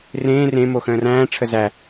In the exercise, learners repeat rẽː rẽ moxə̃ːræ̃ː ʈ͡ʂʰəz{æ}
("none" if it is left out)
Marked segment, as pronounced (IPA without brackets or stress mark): æ